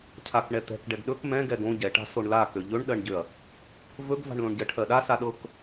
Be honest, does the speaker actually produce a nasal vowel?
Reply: yes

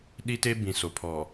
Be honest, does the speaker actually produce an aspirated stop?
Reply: yes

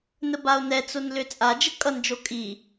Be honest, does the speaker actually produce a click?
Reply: no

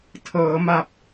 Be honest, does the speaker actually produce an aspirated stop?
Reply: yes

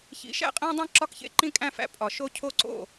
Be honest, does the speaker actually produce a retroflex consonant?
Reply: no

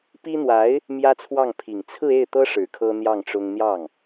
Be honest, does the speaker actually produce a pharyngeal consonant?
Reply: no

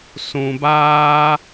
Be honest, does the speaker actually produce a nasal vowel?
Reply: yes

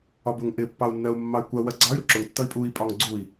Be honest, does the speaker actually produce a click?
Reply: yes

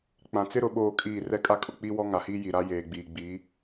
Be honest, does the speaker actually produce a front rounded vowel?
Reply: no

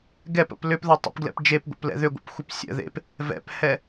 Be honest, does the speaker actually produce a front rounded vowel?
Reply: yes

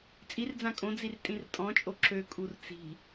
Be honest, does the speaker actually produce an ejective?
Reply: yes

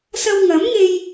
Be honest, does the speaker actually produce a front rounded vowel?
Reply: no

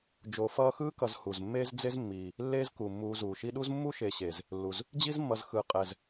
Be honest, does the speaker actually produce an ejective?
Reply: yes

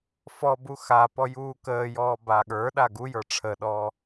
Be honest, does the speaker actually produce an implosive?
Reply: yes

